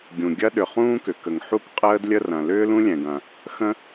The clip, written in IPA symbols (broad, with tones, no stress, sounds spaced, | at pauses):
ɡʲ ũ˩ ɡʲ ɐ˥ ɗ ʏ˩ χ ũː˥ k ʏ˩ k ə˩ ŋ ħ u˥ k qʼ əː˥ d lʲ ə˥ r ɐ̃˩ l ʏː˥ l ũ˥ lʲ ɛ̃˩ ɡ ɐ̃˩ | x ə̃˥